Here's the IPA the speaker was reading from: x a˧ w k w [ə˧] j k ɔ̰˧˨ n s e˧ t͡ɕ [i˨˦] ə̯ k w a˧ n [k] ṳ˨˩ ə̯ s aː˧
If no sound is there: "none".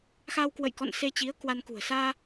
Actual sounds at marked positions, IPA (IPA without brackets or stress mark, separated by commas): ə̰˧˨, i˨˦, k